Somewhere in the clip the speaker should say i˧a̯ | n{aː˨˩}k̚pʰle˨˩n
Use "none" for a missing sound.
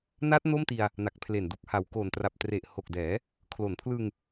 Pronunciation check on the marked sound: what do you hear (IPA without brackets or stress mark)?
a˨˩